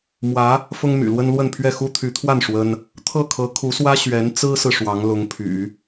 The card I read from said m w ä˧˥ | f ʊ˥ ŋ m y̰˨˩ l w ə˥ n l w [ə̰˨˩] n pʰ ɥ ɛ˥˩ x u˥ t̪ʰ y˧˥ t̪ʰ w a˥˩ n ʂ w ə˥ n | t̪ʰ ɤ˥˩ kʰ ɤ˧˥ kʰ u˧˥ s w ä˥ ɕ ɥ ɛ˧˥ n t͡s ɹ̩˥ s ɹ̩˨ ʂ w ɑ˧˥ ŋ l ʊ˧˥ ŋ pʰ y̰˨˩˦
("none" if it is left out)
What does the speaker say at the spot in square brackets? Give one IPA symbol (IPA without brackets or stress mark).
ə˥˧